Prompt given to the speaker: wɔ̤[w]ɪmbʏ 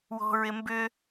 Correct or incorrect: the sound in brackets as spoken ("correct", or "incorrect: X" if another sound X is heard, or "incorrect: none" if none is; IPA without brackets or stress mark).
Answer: incorrect: ɹ